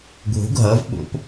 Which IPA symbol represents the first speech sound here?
ɡʱ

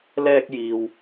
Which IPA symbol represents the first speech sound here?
l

